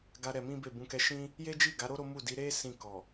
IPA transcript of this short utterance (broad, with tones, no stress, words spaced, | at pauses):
ɡa˧ ɾɛ˧mĩ˦be˦˨ bũ˧kɛ˧ʃĩ˦ | je˦d͡ʒi˦˨ɡa˨˦ɾo˦ ɾo˦mu˦˨ di˨˦ɾe˦ sĩ˦˨kɔ˨